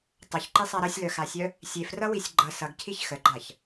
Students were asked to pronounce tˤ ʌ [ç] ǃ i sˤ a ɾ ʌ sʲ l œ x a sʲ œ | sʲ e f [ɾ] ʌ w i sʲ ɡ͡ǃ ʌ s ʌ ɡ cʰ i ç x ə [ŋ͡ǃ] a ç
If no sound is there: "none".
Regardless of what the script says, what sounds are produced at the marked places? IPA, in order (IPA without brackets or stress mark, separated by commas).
ç, r, ɡ͡ǃ